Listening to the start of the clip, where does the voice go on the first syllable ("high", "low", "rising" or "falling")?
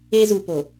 high